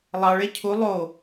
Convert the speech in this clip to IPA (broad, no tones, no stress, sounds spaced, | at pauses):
lˠ ɑ ɭ e cʰ u lˠ o